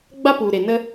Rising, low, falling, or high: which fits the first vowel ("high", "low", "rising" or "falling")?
high